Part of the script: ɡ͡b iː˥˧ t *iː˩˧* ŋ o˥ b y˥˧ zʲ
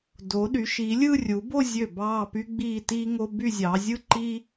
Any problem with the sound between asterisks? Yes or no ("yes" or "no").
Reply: yes